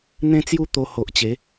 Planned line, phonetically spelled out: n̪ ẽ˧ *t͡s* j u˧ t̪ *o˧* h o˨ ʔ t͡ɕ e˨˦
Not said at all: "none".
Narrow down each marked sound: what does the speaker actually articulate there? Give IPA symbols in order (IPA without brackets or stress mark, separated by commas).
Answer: t͡s, o˧